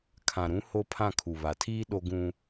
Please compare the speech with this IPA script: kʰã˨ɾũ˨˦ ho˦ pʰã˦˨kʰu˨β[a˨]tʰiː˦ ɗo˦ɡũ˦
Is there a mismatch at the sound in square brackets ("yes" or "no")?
no